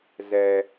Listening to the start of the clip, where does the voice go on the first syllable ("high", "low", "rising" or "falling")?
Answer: high